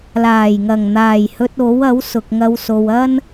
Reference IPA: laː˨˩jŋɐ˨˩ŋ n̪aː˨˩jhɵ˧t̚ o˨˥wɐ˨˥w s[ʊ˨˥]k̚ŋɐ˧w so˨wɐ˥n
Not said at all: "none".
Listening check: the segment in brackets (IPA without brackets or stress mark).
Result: ʊ˨